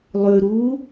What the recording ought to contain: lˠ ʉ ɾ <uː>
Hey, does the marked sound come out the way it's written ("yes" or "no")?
yes